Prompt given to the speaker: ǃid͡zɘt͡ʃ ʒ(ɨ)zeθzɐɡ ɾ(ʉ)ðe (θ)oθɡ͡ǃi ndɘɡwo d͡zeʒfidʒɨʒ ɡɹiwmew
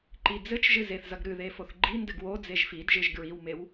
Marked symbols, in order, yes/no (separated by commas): yes, no, no